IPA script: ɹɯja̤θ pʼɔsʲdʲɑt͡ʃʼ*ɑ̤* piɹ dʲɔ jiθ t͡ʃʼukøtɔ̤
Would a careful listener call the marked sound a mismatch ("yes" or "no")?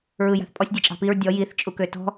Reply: no